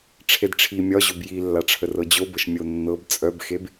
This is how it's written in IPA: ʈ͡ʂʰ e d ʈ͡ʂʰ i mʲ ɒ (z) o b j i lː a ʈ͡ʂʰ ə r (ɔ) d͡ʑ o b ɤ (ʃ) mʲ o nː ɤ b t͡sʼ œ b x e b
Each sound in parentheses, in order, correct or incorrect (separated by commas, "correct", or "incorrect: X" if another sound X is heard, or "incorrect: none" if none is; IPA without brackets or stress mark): incorrect: ʑ, incorrect: ɤ, correct